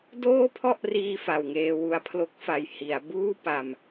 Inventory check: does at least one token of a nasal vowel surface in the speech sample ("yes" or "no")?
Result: no